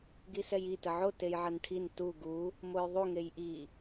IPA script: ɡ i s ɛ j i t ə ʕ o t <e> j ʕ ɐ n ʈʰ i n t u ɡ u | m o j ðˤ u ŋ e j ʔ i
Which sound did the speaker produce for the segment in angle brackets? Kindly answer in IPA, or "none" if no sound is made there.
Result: e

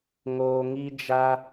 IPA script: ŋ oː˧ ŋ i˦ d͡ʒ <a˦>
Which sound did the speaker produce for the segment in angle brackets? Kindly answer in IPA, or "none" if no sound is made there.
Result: a˦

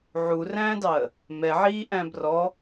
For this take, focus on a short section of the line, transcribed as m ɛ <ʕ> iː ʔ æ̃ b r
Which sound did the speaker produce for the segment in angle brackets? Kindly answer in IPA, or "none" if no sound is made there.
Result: ʕ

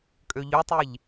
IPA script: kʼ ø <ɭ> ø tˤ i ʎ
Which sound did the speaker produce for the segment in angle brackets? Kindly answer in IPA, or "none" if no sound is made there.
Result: ʎ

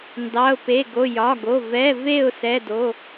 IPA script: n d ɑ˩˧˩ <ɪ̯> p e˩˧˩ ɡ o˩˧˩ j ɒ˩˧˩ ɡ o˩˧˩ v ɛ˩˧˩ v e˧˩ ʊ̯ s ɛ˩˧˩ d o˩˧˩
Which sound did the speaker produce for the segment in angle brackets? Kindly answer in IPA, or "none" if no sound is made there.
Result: ʊ̯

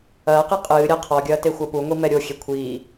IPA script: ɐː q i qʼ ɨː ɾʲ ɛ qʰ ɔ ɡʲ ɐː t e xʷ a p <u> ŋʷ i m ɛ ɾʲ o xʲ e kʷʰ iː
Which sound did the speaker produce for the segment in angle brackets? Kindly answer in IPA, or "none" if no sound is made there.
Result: u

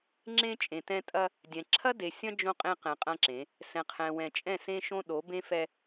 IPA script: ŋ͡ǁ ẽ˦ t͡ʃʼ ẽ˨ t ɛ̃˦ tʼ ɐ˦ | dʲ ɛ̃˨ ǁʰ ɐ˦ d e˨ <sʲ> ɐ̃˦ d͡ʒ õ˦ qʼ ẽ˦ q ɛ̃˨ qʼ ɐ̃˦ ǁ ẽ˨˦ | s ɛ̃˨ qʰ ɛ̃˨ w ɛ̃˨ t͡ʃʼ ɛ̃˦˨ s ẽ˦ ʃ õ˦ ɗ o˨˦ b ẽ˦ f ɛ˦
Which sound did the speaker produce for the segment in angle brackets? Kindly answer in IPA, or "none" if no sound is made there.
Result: sʲ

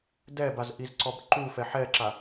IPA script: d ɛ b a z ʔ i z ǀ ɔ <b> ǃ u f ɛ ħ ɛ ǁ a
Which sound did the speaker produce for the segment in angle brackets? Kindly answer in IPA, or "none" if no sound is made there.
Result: b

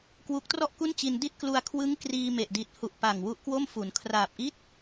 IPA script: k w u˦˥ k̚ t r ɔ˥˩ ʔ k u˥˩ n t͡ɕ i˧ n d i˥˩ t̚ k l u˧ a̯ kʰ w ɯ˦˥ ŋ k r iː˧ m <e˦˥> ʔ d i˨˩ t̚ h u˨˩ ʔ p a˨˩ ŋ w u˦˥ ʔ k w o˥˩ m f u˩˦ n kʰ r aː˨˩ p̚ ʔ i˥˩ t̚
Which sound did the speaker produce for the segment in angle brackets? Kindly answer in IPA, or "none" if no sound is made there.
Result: e˨˩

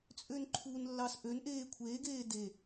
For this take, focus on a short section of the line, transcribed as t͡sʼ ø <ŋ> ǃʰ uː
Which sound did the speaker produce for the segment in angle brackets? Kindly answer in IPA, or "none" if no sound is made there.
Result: n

